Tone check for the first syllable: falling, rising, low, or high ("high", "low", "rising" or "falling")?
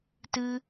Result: high